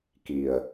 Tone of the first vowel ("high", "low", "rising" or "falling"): low